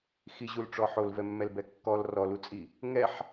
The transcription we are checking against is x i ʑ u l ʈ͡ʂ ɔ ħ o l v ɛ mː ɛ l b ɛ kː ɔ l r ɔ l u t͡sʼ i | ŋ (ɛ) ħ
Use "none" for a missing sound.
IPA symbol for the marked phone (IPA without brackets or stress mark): ɛ